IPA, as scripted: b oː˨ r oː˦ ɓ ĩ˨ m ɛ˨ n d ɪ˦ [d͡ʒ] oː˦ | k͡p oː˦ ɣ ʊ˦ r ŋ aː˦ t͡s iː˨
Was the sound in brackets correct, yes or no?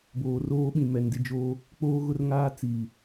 yes